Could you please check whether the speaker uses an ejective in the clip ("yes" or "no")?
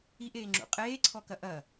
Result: yes